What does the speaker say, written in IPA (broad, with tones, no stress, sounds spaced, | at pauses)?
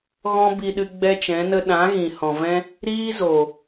ɣ ɔ̃˦ b i˧ ɗ ɨ˧ ɡ͡b ɛ˦ t͡ʃ ɛ̃˨˦ n ə˦ ɗ ã˨˦ ɣ ĩ˨ h ɔ̃˨ v ɛ̃˦ | ɾ iː˦ z o˨